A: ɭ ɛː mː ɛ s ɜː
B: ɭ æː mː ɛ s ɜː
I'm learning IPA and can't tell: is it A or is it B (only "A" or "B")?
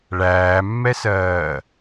B